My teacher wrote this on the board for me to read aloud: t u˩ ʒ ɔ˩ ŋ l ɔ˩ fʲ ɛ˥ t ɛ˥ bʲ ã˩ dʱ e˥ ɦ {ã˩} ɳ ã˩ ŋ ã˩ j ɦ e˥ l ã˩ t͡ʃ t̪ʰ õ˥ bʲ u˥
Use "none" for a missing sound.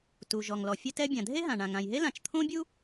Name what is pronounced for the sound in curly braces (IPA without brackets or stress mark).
ã˩